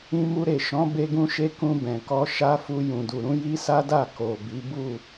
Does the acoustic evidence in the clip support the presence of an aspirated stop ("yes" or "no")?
no